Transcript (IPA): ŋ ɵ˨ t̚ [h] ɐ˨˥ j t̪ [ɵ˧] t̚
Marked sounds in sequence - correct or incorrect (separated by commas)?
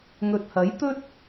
correct, incorrect